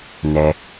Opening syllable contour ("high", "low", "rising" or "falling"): low